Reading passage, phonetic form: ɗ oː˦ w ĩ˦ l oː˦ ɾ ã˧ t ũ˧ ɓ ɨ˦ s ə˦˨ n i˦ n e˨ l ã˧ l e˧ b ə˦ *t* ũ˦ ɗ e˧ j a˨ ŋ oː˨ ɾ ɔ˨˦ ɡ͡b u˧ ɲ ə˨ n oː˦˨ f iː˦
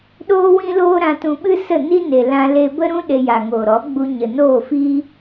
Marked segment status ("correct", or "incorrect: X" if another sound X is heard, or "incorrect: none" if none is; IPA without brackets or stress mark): incorrect: ɾ